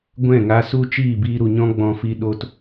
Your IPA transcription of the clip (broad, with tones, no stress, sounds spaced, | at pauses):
ɡʷ ɛ̃˦˨ ŋ a˧ s u˦ t͡ʃ iː˦˨ b iː˧ ɾ u˨ ɲ ɔ̃˦ ɡ͡b ɔ̃˧ f i˧ ɗ o˧ t